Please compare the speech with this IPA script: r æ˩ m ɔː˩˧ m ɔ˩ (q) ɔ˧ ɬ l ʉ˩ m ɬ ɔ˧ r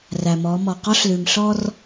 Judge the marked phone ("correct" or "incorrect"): correct